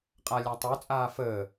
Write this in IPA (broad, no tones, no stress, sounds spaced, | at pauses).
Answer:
qʼ a lʲ a tˤ o t͡sʼ aː f əː